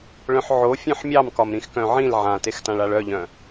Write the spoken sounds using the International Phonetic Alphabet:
ɭ œ̃ ħ ʕ o fʲ œ̃ ħ mʲ ɑ m k ɒ m ɾ ĩ x k œ̃ ʕ ĩ l ʕ ã t e x t ã ɭ a ɭ œ ʎ œ̃

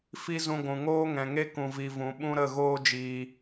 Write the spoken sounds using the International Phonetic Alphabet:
f i˦ z ũ˧ ɡʷ ũ˨ ŋ oː˦ ŋ ɛ̃˨ ŋ e˦ k ũ˧ v i˧ v ũ˨˦ ɓ ũ˦ ɾ ə˦˨ ɣ oː˦ d͡ʒ iː˧

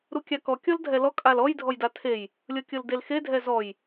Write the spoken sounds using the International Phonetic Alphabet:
ɾ u kʲ a k ɔ kʲ ɔ l dʱ ɛ l ɔ kʼ a l ɔ j dʱ ɔ j d a tʰ e j | lʲ ɤ kʲ ɤ l d e l x e dʱ ɛ z ɔ j

